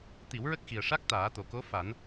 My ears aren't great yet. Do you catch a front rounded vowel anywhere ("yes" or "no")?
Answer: no